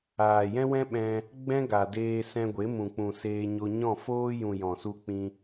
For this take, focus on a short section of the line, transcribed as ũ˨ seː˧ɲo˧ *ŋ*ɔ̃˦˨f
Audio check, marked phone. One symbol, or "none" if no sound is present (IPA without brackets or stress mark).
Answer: ɲ